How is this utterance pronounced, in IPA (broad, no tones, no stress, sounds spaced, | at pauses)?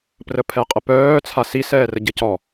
p r ə pʰ ɛ qʼ ə p œː t͡sʰ a s i s ɛː r ə ɟ ə c ɔ